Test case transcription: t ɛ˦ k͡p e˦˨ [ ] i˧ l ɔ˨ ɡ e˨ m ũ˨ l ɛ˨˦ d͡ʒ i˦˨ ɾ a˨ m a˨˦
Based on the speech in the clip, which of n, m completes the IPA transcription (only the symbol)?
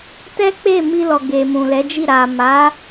m